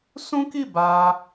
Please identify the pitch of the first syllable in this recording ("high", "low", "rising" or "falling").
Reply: high